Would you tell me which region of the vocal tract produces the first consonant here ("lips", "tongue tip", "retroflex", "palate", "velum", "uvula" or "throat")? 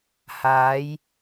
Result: throat